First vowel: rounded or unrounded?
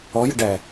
rounded